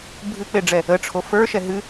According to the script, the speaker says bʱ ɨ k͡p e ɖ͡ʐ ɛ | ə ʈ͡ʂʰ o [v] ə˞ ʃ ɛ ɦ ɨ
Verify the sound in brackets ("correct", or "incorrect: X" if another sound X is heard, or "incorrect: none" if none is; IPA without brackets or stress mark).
incorrect: f